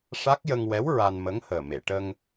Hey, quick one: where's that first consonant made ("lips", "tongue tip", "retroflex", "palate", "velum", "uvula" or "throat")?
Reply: retroflex